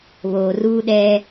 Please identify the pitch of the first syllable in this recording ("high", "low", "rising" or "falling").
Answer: low